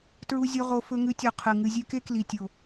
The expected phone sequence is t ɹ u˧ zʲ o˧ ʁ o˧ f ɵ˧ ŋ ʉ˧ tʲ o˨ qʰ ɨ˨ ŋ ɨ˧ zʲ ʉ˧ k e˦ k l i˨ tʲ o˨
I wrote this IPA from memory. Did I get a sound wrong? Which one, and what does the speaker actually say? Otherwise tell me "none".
none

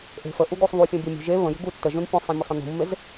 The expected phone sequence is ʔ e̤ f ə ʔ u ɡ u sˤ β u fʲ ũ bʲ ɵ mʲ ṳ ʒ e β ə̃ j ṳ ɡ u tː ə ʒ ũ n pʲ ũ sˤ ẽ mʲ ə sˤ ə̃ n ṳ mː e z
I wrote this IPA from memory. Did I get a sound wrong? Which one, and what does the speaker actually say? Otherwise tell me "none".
none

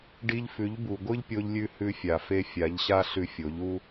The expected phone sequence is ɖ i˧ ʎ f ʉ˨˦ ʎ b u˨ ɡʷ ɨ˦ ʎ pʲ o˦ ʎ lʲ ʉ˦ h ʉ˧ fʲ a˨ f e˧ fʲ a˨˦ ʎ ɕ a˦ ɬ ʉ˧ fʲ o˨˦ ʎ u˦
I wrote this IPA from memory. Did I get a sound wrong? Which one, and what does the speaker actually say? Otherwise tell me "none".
none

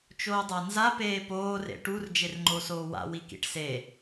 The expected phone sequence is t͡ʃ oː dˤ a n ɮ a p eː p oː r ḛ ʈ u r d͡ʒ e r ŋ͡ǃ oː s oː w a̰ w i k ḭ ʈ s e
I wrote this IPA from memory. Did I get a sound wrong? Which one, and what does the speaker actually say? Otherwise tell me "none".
ɮ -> z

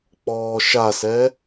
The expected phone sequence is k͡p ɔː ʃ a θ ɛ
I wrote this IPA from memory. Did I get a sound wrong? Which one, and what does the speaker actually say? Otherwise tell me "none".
θ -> s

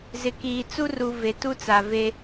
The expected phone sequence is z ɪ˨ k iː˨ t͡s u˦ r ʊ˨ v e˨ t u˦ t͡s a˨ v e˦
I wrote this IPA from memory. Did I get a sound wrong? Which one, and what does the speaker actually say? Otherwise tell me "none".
ʊ˨ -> u˨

